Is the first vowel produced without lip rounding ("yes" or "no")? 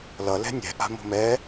yes